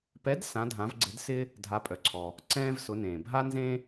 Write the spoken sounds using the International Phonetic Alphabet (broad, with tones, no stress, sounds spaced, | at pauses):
p ɛ˨˦ d s ã˨˦ dʱ ã˨˦ v ɡ͡ǀ ɪ˨˦ d s ɪ˥ | dʱ a˨˦ pʼ œ˩ ǀʰ ɔ˩ | ǀ ɛ̃ː˥ v s ʊ˨˦ n ẽː˩ bʱ a˥ n z ẽ˥